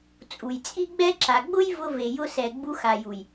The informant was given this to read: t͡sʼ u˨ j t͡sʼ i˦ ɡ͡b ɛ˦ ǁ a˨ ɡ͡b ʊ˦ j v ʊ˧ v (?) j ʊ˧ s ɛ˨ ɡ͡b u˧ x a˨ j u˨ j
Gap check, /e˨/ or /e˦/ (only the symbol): e˨